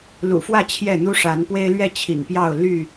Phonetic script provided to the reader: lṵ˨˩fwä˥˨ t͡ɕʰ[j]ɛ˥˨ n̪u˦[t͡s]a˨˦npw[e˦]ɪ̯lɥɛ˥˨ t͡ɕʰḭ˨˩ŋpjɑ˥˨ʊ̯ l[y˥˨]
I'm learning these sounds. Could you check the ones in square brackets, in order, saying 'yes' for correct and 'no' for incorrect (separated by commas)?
yes, no, yes, yes